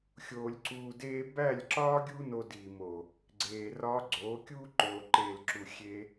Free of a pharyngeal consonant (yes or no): yes